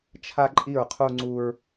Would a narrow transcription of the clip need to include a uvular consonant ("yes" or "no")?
yes